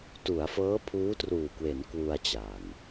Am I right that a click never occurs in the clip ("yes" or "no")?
yes